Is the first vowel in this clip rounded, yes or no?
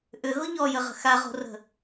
yes